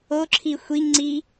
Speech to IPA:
o ǁʰ i xʷ i ŋ ŋ͡ǀ i

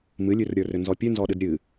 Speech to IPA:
m ɨ lʲ ʉ r ɾʲ ə˞ r ʏ n z ɔ pʲ ʉ n z ɔ ɗ ɨ d ɾʲ ɨ

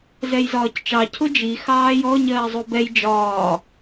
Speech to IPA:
z ɛ j z ɒː c t͡ʃ ɑ cʰ ʊ d͡ʒ i x ɑː j ɔ ɲ ɜː zˤ u b ɛ j d͡ʒ ɒː

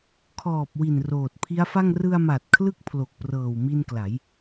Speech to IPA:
kʰ ɔː˨˩ p̚ w i˨˩ n r oː˨˩ t̚ pʰ i˦˥ a̯ f a˥˩ ŋ r ɯ˧ a̯ m a˨˩ t̚ kʰ l ɯ˥˩ k̚ pʰ l o˨˩ k̚ p r ɤː˨˩ w m i˧ n k l a˩˦ j

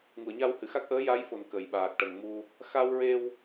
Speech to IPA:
ŋ u˨˩˨ ə̯ ɲ a˧ w h ɨ˨˩˨ x a˦˥ k̚ ʔ əː˧˥ j a˧˥ j f o˨˩ n k ə˨˩˨ j ɓ aː˨˩ k̚ ʈ ə˨˩˨ ŋ m u˧ | x a˧ w ɹ e˧ w

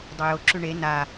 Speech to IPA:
dˤ u j ʊ ǁ ʉ ɳ e n a

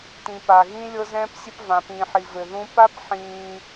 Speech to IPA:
t ĩ˨ p a˨ ɣ ĩ˦ lʲ ɤ˦ z ɛ̃ː˦ p sʲ ɘ˦ p v ã˨ p ĩː˨ ħ i˨ v ɘ˨ ð ũ˦ p a˦ p ħ ĩː˦

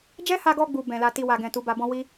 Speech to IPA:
d͡ʒ ɛ˦ h a˧ ɡ ɔ˧ ɡ͡b u˨ b ɛ̃˨ l a˧ t i˧ w a˨ ɡ ɛ̃˨ t u˨˦ b a˧ b ɔ̃˦ w i˦

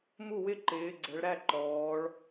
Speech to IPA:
m u˥˩ w ɪ˥˩ ǃ ɪː˩˧ ɡ͡ǀ ɛ˩˧ ɭ ɾ æ˥˩ ǃ ɔː˩˧ ɭ

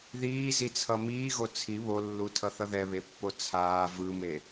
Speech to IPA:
ð iː z i t͡sʰ ʌ m iː ɣ o t͡sʰ i β o lː u tʰ ʌ θ ʌ ð ɛ β e pː o t͡sʰ aː v ɯ m e

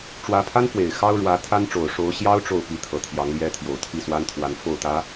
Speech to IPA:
ʈ͡ʂ w ä˧˥ pʰ a˥ n f w e˨˩ ɪ̯ x ɑ˥ ʊ̯ ɻ w ä˧˥ t̪ʰ a˥ n ʈ͡ʂ o˨˩ ʊ̯ ʂ o˧˥ ʊ̯ ɕ j ɑ˥ ʊ̯ ʈ͡ʂ o˥˩ ʊ̯ p i˧˥ t̪ʰ ɤ˨˩ t̪ʰ j ɑ˧˥ ŋ l j ɛ˥ t̪ʰ j o˨˩ ʊ̯ t̪ʰ i˥˩ s w a˥ n t̪ʰ w a˧˥ n f o˥˩ ʊ̯ t̪ ä˧˥

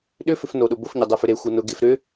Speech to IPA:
ɗ ʏ f ʏ f n o ɗ ʊ b o f ɲ ɐ dˤ e f ʏ ɾ e xʷ ɐ n ʊ ɡ e f ɾ ʏ

